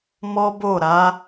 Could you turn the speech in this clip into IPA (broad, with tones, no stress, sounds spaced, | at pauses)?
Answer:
m ɔ˦ b o˦˨ ɾ a˨˦